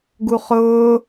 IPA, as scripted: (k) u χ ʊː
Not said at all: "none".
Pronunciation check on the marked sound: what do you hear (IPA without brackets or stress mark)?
ɡ